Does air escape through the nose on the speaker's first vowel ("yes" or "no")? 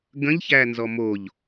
yes